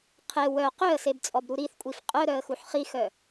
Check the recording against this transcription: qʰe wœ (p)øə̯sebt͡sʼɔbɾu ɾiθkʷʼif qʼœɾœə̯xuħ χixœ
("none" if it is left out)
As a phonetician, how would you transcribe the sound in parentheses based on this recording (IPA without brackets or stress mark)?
q